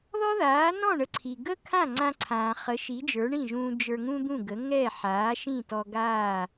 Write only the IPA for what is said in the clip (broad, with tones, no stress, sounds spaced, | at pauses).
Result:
ð ɔ˥ ð aː˩˥ n ɔ̃˥˩ ɳ ə˧ ǀʰ i˩ ɡ ə˥ kʰ ã˥˩ ŋ͡ǀ ã˧ ǀʰ ãː˩ χ ə˩˥ ʃ i˩˥ d͡ʒ ə˞˩˥ ɳ ĩ˥˩ ʒ ũː˧ d͡ʒ ə˞˧ ŋ ũ˥ d̪ ũ˥˩ ɡ ə˩˥ ŋ ɛ˥˩ ħ aː˩˥ ʃ ĩ˥˩ t ɔ˧ ɡ aː˥˩